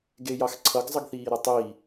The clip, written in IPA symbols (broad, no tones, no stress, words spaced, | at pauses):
ɡejɑxǀʰʌɡ zˤʌɡθiːɾʌtˤiː